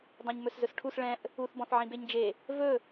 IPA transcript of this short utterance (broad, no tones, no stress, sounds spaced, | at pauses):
dˤ õ ɲ m ɵ s z ɵ s ʈʰ u s ɭ ɛ̃ ʔ | u θ b ɔ̃ θ ʕ ĩ b e ɲ d͡ʒ e | v ɵ